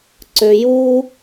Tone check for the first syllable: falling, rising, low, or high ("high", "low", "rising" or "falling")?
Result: low